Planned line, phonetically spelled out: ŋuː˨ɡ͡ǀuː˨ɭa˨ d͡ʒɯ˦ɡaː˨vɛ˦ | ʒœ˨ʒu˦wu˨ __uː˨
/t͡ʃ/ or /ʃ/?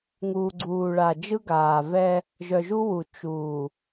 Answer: t͡ʃ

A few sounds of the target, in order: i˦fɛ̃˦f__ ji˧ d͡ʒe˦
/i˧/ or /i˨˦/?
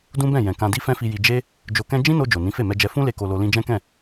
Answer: i˧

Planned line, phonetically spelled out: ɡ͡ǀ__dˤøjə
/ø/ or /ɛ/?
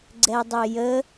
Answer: ɛ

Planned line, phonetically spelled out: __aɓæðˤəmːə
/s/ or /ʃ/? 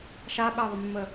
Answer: ʃ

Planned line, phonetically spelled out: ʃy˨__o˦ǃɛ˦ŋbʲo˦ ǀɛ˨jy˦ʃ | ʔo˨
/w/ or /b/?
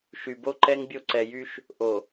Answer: b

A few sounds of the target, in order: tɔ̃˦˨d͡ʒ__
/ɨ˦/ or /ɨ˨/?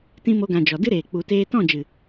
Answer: ɨ˨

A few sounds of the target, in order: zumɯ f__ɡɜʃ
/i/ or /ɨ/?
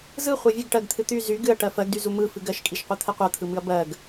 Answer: ɨ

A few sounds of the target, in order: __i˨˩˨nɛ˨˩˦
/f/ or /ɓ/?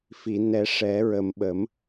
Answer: f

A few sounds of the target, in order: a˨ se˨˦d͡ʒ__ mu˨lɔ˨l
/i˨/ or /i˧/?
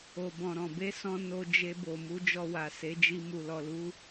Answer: i˧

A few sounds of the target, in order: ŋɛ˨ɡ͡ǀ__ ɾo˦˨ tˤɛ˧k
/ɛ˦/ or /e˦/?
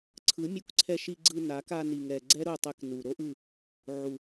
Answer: ɛ˦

